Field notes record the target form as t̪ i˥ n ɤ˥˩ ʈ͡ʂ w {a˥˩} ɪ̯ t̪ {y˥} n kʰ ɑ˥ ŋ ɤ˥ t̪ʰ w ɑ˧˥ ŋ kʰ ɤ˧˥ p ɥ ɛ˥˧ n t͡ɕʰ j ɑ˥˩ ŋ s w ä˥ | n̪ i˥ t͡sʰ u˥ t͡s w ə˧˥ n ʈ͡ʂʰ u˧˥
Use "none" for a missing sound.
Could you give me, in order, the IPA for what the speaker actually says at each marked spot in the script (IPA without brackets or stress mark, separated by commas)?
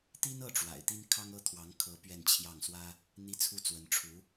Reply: a̰˨˩, i˥